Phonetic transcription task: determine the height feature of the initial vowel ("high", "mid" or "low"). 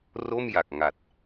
mid